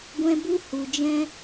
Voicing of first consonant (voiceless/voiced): voiced